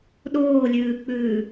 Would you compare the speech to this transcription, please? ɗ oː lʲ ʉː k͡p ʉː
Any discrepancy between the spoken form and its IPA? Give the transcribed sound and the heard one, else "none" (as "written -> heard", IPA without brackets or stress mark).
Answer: none